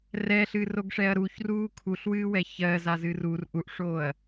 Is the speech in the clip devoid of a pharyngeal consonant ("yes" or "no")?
yes